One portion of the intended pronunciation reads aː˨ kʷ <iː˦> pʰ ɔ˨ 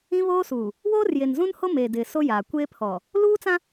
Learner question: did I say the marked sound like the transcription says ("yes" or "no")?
no